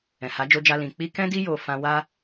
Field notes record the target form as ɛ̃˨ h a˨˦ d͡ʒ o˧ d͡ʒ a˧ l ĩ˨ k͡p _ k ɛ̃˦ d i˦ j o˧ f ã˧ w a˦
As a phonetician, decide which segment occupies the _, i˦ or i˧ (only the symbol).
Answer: i˧